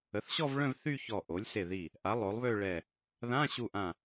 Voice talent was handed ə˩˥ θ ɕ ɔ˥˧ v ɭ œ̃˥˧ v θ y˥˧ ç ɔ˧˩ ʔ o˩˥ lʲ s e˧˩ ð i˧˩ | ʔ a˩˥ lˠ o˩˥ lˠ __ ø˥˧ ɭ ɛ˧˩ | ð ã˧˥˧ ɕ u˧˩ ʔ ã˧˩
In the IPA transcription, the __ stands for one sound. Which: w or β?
β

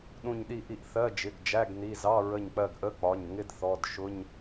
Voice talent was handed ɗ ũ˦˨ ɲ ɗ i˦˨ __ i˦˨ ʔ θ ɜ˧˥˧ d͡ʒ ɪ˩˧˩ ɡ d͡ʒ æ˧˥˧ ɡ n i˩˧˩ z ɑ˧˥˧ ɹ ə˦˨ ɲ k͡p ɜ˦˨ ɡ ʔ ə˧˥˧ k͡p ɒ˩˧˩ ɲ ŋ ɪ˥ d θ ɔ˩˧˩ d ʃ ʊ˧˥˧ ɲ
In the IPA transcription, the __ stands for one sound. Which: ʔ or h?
ʔ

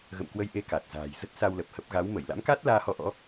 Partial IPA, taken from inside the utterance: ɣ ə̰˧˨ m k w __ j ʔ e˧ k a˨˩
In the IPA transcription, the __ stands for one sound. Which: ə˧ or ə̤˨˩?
ə˧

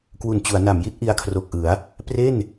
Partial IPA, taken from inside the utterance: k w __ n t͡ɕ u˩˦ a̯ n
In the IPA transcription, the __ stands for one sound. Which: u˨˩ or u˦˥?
u˨˩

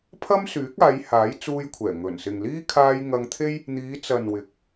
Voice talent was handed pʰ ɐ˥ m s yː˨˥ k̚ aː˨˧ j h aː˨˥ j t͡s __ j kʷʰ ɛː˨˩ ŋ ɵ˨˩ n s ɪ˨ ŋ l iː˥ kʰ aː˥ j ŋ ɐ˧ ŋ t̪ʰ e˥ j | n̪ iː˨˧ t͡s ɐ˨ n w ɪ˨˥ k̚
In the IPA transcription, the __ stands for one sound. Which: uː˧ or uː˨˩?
uː˧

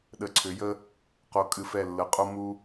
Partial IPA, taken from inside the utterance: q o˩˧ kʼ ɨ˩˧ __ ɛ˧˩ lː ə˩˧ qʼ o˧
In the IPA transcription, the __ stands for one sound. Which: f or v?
f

